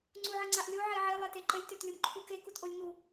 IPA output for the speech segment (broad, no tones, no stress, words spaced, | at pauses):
ŋ͡ǀuʕəŋ͡ǀaʔlʲo ʕeʕe lˠeteǃəlʲ tøtlʲomǃʰuke kutʔolʲŋu